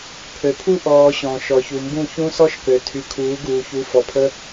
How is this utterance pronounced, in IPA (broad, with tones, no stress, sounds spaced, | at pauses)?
pʰ ø˨ pʰ u˦ ʔ ɔː˧ ɕ ɔ̃˨ ʃ ɔ˨ ç u˨ m b ũ˦˨ ç ũ˦ s ɔ˦ ʃ k ø˨ tʰ y˧ kʰ uː˨˦ ɡ uː˨ ç u˨˦ f ɔ˨ pʰ ə˧